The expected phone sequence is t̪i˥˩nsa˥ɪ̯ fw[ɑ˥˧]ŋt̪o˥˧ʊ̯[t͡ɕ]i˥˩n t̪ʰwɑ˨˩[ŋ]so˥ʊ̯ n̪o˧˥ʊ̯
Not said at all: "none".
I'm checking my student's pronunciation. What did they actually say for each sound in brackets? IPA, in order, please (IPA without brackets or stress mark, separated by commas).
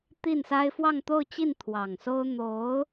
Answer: ɑ˥˧, t͡ɕ, ŋ